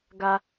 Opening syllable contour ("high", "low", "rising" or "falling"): high